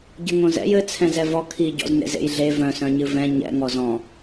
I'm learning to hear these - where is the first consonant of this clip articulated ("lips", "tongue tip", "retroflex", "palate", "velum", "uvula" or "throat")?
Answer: palate